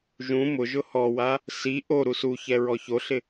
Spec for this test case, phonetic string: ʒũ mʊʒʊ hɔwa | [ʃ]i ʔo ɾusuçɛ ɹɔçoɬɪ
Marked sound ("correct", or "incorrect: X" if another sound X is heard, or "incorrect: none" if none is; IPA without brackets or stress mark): incorrect: s